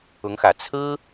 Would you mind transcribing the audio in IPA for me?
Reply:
ʊ˧˥ ŋ x ä˨˩ t͡sʰ ɹ̩˥

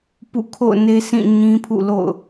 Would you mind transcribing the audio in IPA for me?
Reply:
p ṵ˦˨ kʰ o̰˦˨ ʊ̯ n e˦ s ĩ˦˨ ɲ ĩ˦ pʰ ṵ˦˨ l o̰˦˨ ʊ̯

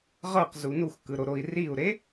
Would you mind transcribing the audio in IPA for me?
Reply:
ʁ ɤ q z u n u x k ɯ ɾ o ɾ o i̯ r i u̯ ɾ e

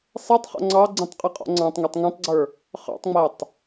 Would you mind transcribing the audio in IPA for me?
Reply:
sˤ ɛ tˤ χ ɔ̰ ŋ͡ǀ ɑ ɡ͡ǀ ĩ tˤ qʼ i qʼ ɔ̰ ŋ͡ǀ ɑ̃ tˤ ŋ ɛ tˤ ŋ ɛ̃ tˤ ɡ͡ǀ ə˞ | χ ɑ̰ tˤ ŋ͡m æ tˤ

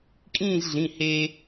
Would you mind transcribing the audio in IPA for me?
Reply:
kʼ ĩː˥˧ z ɮ ĩ˩˧˩ h eː˧

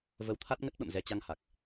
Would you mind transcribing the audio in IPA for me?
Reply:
v ə˨˦ w t̪ʰ a˦˥ t̚ ŋ ə˦˥ t̚ ɓ ə̰˧˨ m z ɛ˧ t͡ɕ a˧ ŋ h a˨˩ k̚

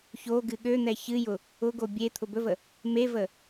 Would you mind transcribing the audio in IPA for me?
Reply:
ç o ɡ ɨ ɠ ø n̪ ɛ ç ɨ j ʊ | ʊ ɡ o bʲ e t̪ʰ ʊ b ɵ v ə | m e v ə

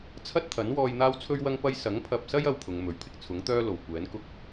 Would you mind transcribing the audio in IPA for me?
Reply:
t͡sʰ ɐ˥ t̚ t̪ʰ ɐ˨˥ n w ɔː˧ j n̪ aː˥ w t͡sʰ ɵ˥ ɥ w ɐ˥ ŋ p ɐ˥ j s ɐ˨˥ ŋ pʰ ɐ˨ p̚ s ɐ˥ j ɐ˥ w pʰ ʊ˨˧ ŋ m ɵ˨˧ ɥ pʰ ɪ˥ k̚ t͡sʰ ʊ˨˥ ŋ t̪ œː˥ l o˨˩ w kʷ ɛː˨˥ n k ʊ˥ k̚

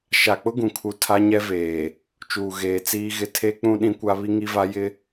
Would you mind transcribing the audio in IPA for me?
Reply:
ʃ a˨ k͡p ʊ˦ ɡ ũ˨ kʰ u˨ tʰ a˦ ɲ ɛ˦ v eː˨ | t͡ʃ uː˨ ɣ eː˨ t͡s iː˦ ɣ ɪ˦ tʰ e˦ k͡p ũ˦ ɗ ĩ˦ kʷ a˦ β i˦ ŋ i˦ v a˦ j ɪ˦

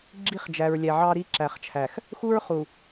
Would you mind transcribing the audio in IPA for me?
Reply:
ɡ͡ǁ i˦ χ d͡ʒ æ˨ ɹ lʲ æ˨ ʕ ɑ˦ ɾ i˦ ǁ æ˨ χ t͡ʃʰ æ˨ x | x u˦ ɹ χ u˨

